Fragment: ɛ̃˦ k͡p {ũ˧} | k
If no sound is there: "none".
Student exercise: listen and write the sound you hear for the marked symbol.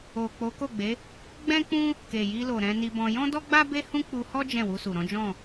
ũ˦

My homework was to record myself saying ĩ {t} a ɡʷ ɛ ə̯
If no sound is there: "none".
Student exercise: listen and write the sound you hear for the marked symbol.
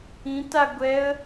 t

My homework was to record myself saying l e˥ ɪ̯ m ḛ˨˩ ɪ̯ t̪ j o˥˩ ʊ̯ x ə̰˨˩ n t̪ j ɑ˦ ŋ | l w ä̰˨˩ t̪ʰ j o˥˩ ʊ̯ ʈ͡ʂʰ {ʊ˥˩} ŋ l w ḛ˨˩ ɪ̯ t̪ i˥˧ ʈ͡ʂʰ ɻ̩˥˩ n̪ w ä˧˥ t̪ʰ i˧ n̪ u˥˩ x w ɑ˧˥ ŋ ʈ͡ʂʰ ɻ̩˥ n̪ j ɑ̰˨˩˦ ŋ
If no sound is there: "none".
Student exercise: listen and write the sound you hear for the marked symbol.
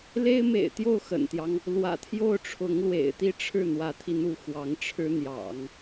ʊ˧˥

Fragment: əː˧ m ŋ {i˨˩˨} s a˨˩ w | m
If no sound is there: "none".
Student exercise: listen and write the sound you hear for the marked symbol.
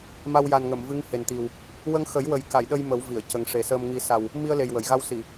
i˨˩˦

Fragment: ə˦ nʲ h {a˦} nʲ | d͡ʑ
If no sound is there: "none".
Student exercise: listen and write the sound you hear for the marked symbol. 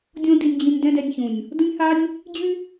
a˦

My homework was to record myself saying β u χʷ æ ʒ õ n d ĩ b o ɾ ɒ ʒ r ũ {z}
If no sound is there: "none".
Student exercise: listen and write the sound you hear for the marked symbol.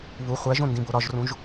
ʒ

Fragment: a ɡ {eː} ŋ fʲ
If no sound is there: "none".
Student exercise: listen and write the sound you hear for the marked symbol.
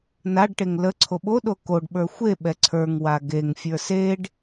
e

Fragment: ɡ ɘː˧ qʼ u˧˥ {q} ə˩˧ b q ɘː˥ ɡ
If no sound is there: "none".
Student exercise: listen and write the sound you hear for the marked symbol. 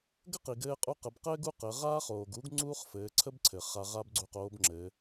q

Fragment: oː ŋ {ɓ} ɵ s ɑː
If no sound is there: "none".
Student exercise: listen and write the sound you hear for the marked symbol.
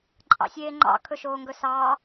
ɡ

